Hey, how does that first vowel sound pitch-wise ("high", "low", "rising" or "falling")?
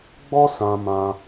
high